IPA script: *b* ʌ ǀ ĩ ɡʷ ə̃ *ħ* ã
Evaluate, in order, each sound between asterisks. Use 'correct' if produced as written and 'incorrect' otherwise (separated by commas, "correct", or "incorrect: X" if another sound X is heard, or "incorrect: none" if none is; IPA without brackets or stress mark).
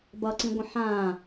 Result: correct, correct